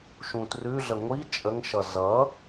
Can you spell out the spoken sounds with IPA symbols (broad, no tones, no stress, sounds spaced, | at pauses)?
ʃ ũ t r ʉ ɮ ə ŋʷ i t͡ʃʼ ə ŋ ʃ ʌ z ʌ